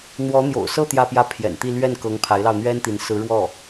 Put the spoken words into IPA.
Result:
n̪wɔ˧˥n̪jo̰˨˩ʊ̯sɤ˥˧ t̪jä˥˧pjä˥˩ pʰjɛ̰˨˩nt̪i˥˧ lɥɛ˥˩nkɤ˧˥ŋ pʰa˧˥ɪ̯lɑ˧ʊ̯n̪ɥɛ˥nt̪i˧˥n sɹ̩˧˥ɻwɔ˥˩

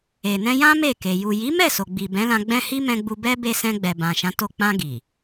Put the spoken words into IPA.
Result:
e˨nɛ̃˧jã˦ me˦˨ke˨ ju˨ji˨˦mɛ˦˨so˨ ɡ͡bi˨bɛ̃˨˦lã˧ ɡ͡bɛ̃˧hi˧ mɛ̃˧ɡ͡bu˧ bɛ˦be˧sɛ̃˧ ɡ͡bɛ˨bã˨ʃã˨˦to˧ k͡pã˧ ɡi˨

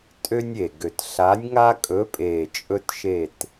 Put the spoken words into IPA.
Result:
tʼø˦nʲe˨˩ɡø˨˩t ɬa˨˦nʲŋa˦kʼɵ˨˦pʼe˨˩ t͡ʃʼɵ˦tʃe˦˨t

